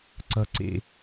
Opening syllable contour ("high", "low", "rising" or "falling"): high